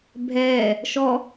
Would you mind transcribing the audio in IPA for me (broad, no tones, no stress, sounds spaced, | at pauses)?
bʱ ɛː | ʃ ɔ